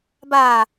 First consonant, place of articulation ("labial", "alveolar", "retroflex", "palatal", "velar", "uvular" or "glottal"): labial